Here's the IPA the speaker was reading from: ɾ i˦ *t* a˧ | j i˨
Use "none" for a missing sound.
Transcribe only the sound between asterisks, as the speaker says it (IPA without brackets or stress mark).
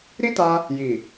t